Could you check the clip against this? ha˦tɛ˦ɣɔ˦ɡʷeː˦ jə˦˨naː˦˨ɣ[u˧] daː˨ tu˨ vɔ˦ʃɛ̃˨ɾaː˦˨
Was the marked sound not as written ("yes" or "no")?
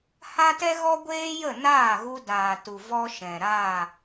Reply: no